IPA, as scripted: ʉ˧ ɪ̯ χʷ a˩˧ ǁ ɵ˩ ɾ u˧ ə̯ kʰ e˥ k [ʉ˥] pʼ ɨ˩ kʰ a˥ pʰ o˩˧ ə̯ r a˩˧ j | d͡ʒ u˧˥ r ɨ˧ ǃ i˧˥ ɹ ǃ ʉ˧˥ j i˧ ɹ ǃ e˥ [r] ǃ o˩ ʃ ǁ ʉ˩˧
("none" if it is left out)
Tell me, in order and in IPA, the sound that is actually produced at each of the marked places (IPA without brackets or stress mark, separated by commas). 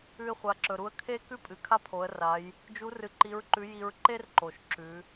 ʉ˥, r